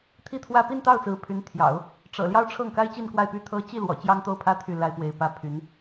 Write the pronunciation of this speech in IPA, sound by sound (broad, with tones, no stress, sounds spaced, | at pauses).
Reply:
t̪ʰ i˥˧ t̪ʰ w ä˥˧ p i˥˧ n t̪ ɑ˥˩ ʊ̯ t͡s ɹ̩˧˥ pʰ y˧˥ n t̪ʰ j ɑ̰˨˩˦ ʊ̯ | ʈ͡ʂ ɤ̰˨˩ l j ɑ˥ ʊ̯ ʈ͡ʂʰ ɤ˥˩ ŋ k a˥ ɪ̯ t͡ɕ i˥˧ n k w a˥˩ ɪ̯ p y˥ t̪ʰ ɤ˥ t͡ɕ i˥˩ l w ɔ̰˨˩ t͡ɕ j ɑ˥ ŋ t̪ o˥˩ ʊ̯ pʰ ä˥ t̪ʰ y˥˩ l a˥ ɪ̯ p w e˧˥ ɪ̯ p ä˥ pʰ y˧˥ n